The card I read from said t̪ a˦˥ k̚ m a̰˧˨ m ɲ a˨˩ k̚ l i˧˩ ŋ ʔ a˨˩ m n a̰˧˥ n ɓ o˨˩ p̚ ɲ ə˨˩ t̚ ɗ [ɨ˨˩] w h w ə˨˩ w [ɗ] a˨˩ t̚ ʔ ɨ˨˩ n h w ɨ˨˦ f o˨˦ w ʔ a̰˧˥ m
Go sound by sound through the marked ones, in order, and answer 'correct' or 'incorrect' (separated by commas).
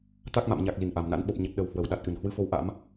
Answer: incorrect, correct